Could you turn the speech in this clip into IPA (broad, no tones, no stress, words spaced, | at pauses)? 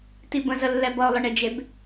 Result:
tibə̃zəlːɛ bʌʊ̯lˠəɳed͡ʒeb